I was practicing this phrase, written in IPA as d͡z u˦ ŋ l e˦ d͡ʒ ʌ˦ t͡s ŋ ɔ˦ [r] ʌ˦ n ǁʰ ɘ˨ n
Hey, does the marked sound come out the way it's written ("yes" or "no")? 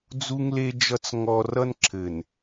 yes